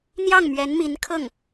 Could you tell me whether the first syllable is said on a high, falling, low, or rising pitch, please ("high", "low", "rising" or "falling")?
falling